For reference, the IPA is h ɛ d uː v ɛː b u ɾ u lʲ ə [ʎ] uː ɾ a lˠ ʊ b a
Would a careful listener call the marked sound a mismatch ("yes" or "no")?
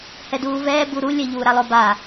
no